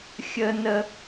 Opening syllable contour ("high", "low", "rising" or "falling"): low